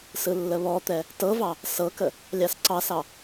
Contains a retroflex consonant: no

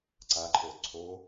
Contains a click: yes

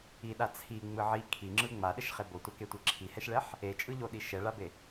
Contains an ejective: yes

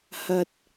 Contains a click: no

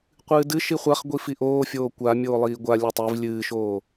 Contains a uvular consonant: yes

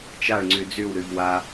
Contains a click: yes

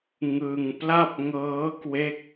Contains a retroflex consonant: no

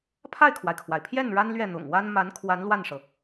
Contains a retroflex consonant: yes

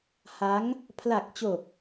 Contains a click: no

